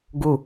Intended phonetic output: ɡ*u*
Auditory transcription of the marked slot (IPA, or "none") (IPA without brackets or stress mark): u